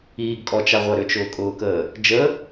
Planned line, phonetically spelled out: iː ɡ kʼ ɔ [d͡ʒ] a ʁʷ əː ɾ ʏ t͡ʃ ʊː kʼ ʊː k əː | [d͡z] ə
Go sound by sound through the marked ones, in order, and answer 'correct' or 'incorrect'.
incorrect, incorrect

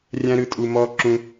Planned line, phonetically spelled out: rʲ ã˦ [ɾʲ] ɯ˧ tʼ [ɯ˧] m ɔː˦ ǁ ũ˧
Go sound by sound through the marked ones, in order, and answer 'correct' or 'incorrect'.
incorrect, incorrect

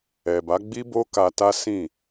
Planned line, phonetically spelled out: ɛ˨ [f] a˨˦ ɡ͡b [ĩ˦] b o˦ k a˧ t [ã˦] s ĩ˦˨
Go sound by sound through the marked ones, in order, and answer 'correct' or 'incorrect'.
incorrect, incorrect, incorrect

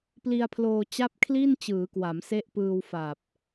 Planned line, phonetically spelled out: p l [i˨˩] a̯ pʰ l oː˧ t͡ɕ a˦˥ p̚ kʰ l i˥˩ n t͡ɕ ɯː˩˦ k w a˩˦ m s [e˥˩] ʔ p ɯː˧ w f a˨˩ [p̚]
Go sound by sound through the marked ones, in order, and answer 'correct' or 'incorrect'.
incorrect, incorrect, correct

